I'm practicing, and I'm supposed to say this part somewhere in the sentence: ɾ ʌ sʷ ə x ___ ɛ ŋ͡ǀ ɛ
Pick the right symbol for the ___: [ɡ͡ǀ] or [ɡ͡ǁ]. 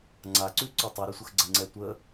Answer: ɡ͡ǀ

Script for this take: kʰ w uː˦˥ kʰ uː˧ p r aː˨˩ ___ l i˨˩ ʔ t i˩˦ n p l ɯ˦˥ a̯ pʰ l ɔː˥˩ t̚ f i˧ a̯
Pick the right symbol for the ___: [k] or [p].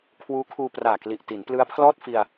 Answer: k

